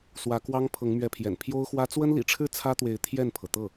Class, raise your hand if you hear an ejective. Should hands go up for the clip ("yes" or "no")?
no